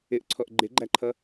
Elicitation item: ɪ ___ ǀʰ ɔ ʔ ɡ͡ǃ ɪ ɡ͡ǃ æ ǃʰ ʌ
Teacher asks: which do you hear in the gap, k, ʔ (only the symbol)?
ʔ